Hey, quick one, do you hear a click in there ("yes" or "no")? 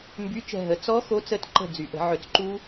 yes